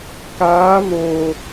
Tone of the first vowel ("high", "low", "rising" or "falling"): rising